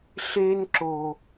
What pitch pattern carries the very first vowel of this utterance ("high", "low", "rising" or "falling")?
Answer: high